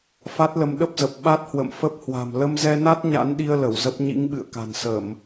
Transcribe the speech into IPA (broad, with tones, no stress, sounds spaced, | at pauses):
f a˦˥ t̚ l ə˧ m ɗ ə˦˥ p̚ z ə˨˩ p̚ ɓ a˦˥ t̚ h w ə̰˧˨ m f ə˦˥ p̚ h w a̤˨˩ m l ə˧ m z ɛ˧ n a˦˥ t̚ ɲ a̰˧˥ n ɗ i˧ ə̯ l ə˧˩ w z ə˦˥ p̚ ɲ ḭ˧˥ ŋ ɓ ɨ̰˧˨ ə̯ k a̤˨˩ n s ə˧˩˨ m